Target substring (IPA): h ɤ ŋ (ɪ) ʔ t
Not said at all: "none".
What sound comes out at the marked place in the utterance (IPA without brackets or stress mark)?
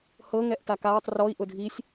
ɛ